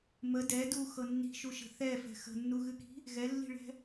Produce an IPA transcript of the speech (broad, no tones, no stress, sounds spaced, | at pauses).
m ə d ɛ d u x ɤ nː i̤ ʃ u ʃ ə̤ θ ɛ f ɛ̤ x ə̤ nː u ɣ ɨ k i̤ | ɣ ɛ lː i̤ ɭ ɛ̤